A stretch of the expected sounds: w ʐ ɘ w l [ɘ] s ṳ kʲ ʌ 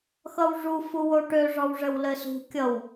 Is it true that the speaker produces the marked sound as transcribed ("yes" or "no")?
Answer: yes